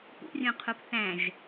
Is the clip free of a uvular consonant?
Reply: no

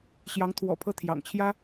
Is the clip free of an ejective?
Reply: yes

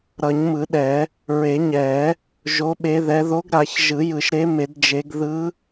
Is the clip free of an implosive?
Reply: no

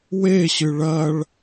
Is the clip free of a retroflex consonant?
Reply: no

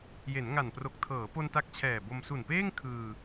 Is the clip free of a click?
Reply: yes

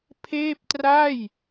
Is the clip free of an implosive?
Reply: yes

